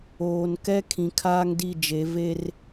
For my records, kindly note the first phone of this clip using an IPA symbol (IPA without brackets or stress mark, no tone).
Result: oː